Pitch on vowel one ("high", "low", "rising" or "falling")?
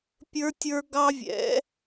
high